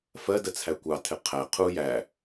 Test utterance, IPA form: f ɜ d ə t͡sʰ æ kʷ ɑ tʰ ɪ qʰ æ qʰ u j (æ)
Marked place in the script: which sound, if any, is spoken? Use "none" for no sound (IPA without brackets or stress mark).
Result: æ